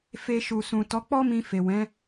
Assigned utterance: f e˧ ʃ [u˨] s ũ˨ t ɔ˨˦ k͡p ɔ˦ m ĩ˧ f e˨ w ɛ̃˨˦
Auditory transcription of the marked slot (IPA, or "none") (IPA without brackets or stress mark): u˨